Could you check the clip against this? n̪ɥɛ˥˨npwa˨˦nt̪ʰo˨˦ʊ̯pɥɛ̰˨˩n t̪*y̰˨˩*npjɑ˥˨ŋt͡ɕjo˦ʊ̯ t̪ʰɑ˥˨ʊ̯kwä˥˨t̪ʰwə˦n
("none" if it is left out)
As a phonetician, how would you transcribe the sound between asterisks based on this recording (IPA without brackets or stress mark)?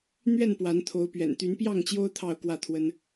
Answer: y˨˦